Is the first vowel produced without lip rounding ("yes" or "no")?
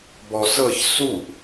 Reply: no